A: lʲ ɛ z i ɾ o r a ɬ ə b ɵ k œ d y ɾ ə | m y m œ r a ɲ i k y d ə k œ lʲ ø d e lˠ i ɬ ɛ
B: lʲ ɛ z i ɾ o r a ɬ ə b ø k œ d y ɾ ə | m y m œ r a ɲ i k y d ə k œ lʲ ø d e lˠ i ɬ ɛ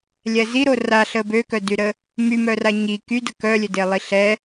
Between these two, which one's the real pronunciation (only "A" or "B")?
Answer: B